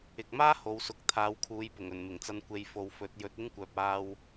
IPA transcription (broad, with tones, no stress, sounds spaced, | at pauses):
ɪ˨ k̚ m aː˥ h o˨˧ w s ʊ˨˥ k̚ t̪ʰ aː˨˧ w kʰ uː˨˧ j p ʊ˨˩ ŋ ɵ˨˩ n m ɪ˨˩ ŋ t͡s ɐ˧ n kʷ e˨ j f o˨ w f ɵ˨˥ t̚ j ɵ˨˥ t̚ ɪ˥ ŋ kʷ œː˨ p̚ aː˧ w